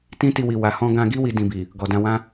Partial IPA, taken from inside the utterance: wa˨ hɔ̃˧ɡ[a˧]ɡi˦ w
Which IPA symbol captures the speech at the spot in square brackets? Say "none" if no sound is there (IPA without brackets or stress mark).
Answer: ã˧